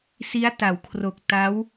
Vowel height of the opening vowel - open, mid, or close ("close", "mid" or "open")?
close